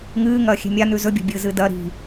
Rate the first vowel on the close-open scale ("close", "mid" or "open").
close